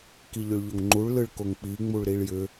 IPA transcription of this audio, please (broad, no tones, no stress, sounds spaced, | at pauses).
k i ʎ ʏ ɭ ʎ o ŋ ŋ͡ǃ u ɭ l ɯ ɭ k o ŋ k͡p i ŋ͡m u ɭ ɾ i ɭ j ʏ